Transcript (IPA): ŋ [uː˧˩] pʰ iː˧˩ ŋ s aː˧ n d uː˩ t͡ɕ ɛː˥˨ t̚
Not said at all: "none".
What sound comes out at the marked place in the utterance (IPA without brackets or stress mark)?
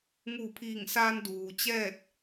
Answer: uː˧˩